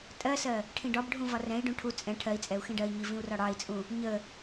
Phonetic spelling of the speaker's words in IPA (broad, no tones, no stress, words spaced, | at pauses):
tʼɜsɜ | ʈʰĩɖɒbɖʱũ vɒrɛ̃i̯ɖũ ʈʰu t͡sʼɛ̃ ʈʰɜi̯t͡sʼɛu̯ xĩɖɜi̯ɲi vĩu̯rɒɽɑi̯t͡sʼũ | ɲə